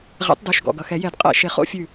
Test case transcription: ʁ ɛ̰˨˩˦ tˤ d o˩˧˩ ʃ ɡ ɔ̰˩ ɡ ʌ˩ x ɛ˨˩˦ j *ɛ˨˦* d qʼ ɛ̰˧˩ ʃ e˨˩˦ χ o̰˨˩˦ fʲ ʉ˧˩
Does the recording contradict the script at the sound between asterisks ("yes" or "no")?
yes